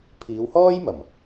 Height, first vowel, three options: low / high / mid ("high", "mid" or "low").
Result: high